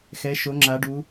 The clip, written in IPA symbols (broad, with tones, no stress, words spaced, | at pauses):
xɛ˩˧ ʃo˩˧ŋ͡ǁa˩˧ɖu˩˧